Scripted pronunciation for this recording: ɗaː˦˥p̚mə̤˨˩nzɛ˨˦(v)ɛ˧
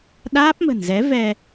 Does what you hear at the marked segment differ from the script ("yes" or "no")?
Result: no